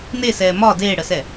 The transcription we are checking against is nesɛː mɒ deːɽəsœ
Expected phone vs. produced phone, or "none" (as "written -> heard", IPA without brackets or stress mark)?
œ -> ɛ